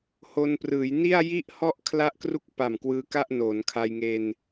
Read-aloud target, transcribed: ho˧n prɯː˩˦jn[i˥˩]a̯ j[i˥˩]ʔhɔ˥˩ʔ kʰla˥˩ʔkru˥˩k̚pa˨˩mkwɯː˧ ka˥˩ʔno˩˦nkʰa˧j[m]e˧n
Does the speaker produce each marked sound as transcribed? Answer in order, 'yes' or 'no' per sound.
yes, yes, no

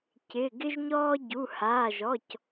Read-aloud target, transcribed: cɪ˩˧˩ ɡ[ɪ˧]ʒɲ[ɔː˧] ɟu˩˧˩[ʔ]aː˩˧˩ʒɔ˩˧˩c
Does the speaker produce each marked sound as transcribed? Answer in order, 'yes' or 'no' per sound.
yes, yes, no

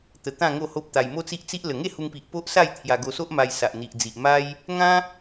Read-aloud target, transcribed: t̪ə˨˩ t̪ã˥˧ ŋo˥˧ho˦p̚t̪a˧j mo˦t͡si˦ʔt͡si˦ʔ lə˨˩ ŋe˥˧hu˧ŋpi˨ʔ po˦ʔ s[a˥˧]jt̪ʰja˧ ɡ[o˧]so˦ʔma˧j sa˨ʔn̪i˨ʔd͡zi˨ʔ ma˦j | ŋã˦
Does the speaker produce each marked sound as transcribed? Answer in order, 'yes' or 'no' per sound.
yes, yes

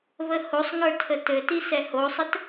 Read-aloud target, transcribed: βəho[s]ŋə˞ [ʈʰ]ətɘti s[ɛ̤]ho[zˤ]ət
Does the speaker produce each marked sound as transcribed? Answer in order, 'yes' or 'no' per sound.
no, no, no, no

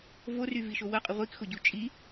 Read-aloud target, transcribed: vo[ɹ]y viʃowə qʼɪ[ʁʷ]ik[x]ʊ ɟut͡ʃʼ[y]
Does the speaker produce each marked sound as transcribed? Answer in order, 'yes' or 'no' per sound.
no, yes, yes, no

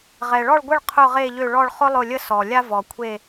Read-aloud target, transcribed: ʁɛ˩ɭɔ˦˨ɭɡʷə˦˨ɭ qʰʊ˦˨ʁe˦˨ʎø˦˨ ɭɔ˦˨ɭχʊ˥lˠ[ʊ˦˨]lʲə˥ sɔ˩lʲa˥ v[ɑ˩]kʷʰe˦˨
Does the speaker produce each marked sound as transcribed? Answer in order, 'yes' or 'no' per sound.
yes, no

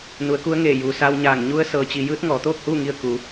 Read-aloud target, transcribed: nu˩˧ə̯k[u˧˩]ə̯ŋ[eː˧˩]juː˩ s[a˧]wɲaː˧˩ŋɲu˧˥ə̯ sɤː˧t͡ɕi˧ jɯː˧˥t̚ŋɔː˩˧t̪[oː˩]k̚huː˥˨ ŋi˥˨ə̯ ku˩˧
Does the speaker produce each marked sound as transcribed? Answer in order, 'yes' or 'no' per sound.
no, yes, yes, no

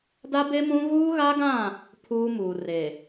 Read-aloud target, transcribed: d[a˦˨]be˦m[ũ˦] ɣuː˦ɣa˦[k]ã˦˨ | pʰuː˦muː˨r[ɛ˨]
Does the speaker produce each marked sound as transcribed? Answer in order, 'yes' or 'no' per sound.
no, yes, no, no

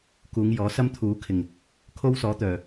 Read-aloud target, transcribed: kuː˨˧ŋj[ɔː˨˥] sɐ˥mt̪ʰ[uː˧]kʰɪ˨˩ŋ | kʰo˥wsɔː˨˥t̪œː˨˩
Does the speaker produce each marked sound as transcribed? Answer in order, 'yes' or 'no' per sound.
yes, no

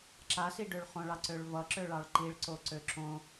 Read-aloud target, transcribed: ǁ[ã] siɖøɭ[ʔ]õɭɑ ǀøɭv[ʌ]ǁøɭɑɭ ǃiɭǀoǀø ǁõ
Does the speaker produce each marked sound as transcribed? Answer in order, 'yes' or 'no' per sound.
no, no, yes

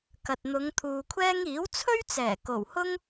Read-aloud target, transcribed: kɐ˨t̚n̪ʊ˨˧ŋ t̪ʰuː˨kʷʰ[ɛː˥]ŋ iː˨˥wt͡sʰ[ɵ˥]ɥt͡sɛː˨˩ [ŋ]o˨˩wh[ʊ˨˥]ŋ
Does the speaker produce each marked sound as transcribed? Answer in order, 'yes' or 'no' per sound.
yes, yes, no, no

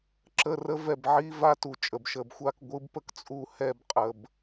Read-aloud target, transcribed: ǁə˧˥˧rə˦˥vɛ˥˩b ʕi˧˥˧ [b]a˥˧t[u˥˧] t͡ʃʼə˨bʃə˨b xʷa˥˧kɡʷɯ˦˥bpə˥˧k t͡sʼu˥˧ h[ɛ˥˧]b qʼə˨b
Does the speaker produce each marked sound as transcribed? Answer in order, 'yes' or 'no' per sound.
no, no, yes

